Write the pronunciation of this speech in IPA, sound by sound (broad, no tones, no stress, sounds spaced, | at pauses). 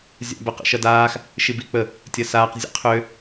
zʲ a̰ b ə q ə̰ ʃ ɐ d aː x | ʃ i b i k͡p ə | tʲ ɐ s aː q zʲ ə̰ qʰ ø